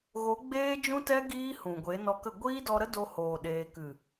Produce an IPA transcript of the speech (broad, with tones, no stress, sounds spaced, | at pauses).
ɣ o˨˦ ɡ͡b eː˦ d͡ʒ ũ˦ t ɛ˦ ɡ iː˦ h ũ˨ ɡʷ e˨˦ n ɔ˧ k ə˦˨ ɡʷ iː˦ d ɔ˧ ɾ ə˦ d o˧ h oː˨ ɗ eː˧ k ɨ˨